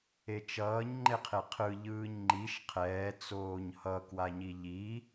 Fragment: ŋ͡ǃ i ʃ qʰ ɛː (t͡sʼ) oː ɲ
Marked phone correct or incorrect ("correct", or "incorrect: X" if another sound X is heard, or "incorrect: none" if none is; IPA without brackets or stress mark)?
incorrect: t͡s